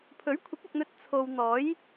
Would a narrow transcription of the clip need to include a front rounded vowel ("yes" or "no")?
no